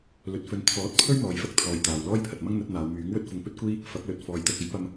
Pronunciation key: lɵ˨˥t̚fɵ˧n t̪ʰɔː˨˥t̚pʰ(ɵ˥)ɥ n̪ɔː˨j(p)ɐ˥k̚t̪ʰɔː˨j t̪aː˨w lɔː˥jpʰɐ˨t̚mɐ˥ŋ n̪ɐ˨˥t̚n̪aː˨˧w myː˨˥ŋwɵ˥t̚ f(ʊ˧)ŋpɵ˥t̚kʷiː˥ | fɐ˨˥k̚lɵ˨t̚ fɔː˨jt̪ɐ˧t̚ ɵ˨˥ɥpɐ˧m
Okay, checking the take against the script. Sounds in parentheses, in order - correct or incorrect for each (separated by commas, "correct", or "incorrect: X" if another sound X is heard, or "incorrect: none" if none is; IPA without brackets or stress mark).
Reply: correct, incorrect: f, correct